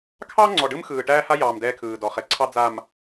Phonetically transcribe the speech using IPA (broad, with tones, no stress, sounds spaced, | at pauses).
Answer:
kʰ ɑ˦ ŋ͡ǀ ɔ˨ ɖ ɯ˦ m x ɯː˨ ʈ æː˦ h a˦ j ɑː˨ m d ɛː˦ kʰ ɯː˨ d ɔ˨ χ ɛ˨ ǀʰ ɑ˦ d͡z a˨ m